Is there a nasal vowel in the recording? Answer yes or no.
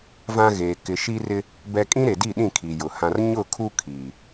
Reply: yes